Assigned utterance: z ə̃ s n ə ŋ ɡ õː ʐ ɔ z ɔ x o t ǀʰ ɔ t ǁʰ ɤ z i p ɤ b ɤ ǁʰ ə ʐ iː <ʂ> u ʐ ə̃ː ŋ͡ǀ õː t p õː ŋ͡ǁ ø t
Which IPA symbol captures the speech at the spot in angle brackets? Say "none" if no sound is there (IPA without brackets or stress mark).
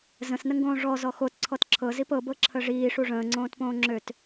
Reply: ʂ